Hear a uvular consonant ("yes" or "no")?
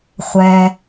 yes